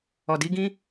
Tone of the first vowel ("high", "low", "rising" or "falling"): low